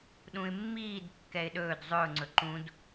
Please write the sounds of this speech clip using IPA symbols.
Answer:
ɗ ũ ɪ̯ mː iː d kː ɛ ɪ̯ ɗ ɵː d zˤ ɵ ʊ̯ ŋ͡ǀ ɵ ǃ ũ d

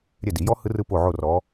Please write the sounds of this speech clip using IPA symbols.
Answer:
ɾʲ ɛ˦˨ d i˨˩˦ j ɔ˦˥ h ɯ˦˥ r ɯ˦˥ p o˦˨ ʕ o˦˨ r ɔ˨˦

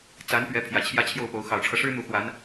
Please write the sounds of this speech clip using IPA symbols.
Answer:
t͡s a˧˥ n p ɥ ɛ˧˥ pʰ j ä˨˩ t͡ɕʰ j ä˥˧ t͡ɕʰ j o˥˩ ʊ̯ p o˧˥ ʊ̯ x ɑ˨˩ ʊ̯ ʈ͡ʂʰ ɤ˦ ʂ ɻ̩˥ n̪ u˧˥ x w a˧˥ n

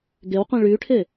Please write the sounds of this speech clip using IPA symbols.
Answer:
ɡ e w qʷ ĩ ɭ y ʈʰ e

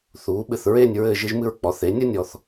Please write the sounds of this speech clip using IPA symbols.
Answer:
θ uː˩˧ ɓ ɨ˧˩ θ ɹ e˥˧ nʲ ɹ ɘː˥˧ ʒ ɨ˥ ʒ m ɨ˥˧ ɹ k͡p ɔ˩˧ θ e˩˧ nʲ ɐ˥ nʲ ɔ˧ θ

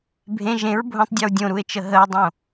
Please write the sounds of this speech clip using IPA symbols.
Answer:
bʱ ẽ ʒ ẽ ɹ bʱ õ tˤ dʲ e w dʲ õ ɾ u e̯ t͡ʃ ə ɦ ə e̯ dˤ õ

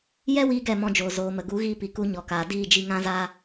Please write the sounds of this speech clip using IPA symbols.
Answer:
j ɛ˦ w iː˦ ɡ ɛ˦˨ m ɔ̃˧ d͡ʒ oː˨ z oː˨ m ə˨ ɡ u˨˦ ɣ iː˧ p i˨ k u˨˦ ɲ ɔ˨ k aː˨ d iː˦˨ d͡ʒ i˧ ŋ ã˧ z aː˧

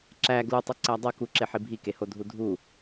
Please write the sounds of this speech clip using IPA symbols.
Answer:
ǁ æ ɡ l u tˤ u ǀ æ dˤ o k u ǁ e ħ i bʱ i k e h o dʱ u dʱ u

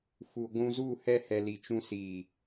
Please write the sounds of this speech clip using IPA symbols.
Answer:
f u˨ ɡʷ ũ˧ z u˦˨ h ɛ˧ h ɛ˨ l i˨ t͡ʃ ũ˧ s iː˨

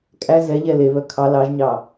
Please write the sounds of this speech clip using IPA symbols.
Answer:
kʼ æ z ɛ ʎ ɛ l e β œ kʰ ɑ l ɑ ʒ ɲ ɑ

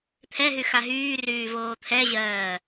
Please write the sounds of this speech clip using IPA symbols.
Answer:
t̪ʰ ɛ ɦ y x a ɦ yː r yː v oː t̪ʰ ɛ ʑ ɜː

